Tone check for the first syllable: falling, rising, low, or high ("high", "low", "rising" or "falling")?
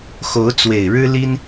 rising